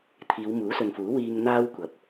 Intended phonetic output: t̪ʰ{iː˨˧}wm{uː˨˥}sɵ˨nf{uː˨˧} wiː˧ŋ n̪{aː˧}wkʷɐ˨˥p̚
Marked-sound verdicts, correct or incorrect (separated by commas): correct, correct, incorrect, incorrect